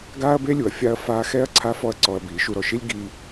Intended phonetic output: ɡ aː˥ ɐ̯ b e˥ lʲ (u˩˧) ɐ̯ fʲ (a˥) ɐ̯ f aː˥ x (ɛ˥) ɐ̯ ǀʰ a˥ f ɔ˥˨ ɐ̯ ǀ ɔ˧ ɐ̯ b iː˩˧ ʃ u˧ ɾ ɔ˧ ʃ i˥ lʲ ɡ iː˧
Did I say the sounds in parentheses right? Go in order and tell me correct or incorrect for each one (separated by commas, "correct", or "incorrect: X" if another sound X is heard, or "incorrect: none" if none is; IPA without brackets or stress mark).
correct, correct, correct